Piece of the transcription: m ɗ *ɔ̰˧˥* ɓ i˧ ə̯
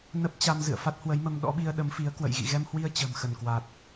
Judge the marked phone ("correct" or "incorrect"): correct